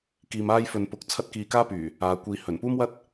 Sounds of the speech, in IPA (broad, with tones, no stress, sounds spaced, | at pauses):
k iː˧ m aː˥ j f ɵ˧ n p ʊ˧ k̚ t͡sʰ ɐ˥ t̚ k iː˧ k aː˥ p yː˨˩ | aː˧ kʷ iː˧ h ɵ˨˩ n p uː˥ m w ɐ˥ t̚